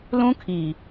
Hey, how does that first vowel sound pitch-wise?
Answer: high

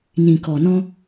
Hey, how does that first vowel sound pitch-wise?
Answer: low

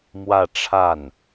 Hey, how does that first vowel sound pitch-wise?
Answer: falling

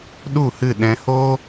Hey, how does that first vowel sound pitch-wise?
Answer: falling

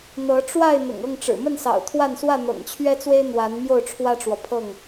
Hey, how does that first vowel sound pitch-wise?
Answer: rising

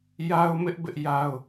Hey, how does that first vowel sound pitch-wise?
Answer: high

